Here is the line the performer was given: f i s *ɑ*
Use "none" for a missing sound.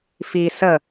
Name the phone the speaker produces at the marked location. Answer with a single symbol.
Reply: ə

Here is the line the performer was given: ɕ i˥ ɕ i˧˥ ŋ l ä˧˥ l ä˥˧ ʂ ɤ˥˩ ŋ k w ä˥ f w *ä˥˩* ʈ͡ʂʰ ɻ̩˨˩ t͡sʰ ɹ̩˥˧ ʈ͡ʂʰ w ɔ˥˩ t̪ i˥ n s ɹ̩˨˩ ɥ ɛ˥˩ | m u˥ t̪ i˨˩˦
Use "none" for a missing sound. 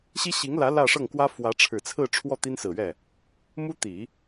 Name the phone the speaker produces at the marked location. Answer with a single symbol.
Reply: ä˧˥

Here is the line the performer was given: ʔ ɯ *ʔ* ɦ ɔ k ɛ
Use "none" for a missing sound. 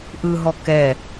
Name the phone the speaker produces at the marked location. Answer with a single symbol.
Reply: none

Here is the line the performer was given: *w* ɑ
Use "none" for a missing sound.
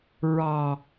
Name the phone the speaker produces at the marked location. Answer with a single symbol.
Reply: ɹ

